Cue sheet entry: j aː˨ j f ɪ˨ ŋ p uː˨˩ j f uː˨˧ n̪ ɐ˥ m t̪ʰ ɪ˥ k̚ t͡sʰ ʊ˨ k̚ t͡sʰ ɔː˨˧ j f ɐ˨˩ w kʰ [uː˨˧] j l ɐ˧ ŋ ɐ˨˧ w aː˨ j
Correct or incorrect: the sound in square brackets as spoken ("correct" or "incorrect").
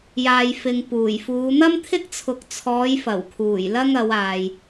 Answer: incorrect